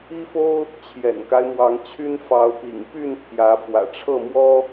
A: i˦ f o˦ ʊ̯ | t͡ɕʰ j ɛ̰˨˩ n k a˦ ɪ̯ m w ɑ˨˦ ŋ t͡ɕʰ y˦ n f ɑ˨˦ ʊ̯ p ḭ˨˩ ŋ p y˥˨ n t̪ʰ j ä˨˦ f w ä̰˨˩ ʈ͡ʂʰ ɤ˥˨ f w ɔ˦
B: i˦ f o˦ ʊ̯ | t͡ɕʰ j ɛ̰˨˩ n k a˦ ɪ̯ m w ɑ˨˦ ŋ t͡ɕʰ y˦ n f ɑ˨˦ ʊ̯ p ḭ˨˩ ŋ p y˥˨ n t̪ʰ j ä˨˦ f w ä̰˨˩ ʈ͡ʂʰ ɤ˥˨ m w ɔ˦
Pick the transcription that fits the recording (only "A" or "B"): B